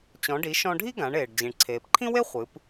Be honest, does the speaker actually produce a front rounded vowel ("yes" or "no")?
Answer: no